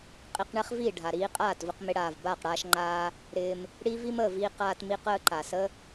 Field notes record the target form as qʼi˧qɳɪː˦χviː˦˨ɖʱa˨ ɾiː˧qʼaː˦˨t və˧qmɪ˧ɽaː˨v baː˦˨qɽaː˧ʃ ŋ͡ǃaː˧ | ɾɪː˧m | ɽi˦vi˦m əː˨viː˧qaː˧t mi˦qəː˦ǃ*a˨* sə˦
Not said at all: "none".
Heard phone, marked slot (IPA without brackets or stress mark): a˨